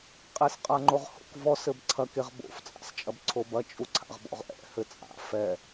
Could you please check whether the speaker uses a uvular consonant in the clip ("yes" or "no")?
yes